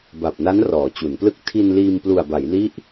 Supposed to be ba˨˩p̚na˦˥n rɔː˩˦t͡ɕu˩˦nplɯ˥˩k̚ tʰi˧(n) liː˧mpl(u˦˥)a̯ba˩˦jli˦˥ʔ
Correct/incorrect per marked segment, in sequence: correct, incorrect

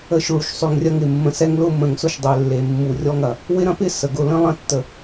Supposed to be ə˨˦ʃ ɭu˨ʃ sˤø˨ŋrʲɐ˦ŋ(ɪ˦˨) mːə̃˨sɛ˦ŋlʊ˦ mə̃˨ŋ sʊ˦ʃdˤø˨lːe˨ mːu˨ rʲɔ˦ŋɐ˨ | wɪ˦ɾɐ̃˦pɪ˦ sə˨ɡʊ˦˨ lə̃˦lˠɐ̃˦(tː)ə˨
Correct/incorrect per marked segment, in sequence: incorrect, correct

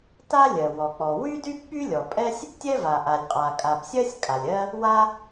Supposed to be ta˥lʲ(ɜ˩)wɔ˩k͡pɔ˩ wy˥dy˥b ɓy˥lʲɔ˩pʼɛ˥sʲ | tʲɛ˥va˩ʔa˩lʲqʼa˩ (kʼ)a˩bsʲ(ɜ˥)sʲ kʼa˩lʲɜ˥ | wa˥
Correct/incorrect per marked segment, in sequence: correct, correct, correct

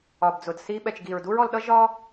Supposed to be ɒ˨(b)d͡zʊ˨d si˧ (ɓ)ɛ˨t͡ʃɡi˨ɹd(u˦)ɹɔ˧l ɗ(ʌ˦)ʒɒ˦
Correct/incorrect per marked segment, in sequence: correct, correct, correct, correct

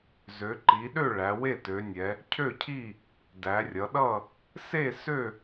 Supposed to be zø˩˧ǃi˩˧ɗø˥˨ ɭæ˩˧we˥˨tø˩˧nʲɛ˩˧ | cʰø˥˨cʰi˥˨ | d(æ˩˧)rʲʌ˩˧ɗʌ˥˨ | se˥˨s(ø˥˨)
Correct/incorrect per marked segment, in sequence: correct, correct

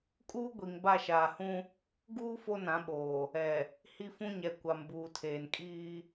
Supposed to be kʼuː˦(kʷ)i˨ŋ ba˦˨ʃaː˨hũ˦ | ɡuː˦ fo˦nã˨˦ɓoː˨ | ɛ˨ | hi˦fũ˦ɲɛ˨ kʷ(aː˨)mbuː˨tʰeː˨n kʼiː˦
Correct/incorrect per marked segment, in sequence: incorrect, incorrect

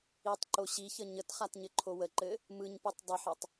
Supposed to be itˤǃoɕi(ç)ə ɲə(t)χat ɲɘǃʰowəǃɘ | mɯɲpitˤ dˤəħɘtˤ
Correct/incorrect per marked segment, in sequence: correct, correct

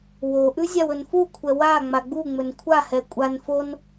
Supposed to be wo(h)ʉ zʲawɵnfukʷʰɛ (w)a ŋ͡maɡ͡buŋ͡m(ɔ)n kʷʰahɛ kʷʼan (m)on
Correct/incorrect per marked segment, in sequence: incorrect, correct, incorrect, incorrect

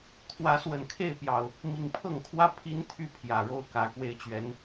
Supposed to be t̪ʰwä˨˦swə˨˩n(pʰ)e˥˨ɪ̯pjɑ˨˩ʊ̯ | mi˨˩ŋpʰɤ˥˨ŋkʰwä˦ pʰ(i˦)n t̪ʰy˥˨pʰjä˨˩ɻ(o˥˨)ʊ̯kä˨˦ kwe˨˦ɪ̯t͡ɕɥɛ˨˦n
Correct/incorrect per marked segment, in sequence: incorrect, correct, correct

